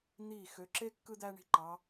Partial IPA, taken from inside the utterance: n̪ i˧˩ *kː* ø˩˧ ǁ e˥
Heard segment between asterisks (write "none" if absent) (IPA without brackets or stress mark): x